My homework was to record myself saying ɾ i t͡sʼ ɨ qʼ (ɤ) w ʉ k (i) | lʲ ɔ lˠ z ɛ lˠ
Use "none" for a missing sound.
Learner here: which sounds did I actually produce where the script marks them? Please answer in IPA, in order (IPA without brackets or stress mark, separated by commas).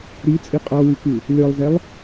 ɔ, ɨ